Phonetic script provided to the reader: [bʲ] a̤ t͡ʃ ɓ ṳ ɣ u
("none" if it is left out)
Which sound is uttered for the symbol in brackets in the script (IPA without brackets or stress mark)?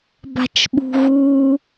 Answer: b